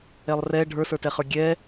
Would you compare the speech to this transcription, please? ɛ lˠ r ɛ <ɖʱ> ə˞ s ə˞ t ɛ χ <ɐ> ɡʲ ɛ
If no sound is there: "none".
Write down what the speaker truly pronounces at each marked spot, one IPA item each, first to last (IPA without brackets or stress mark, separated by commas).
ɖʱ, ə˞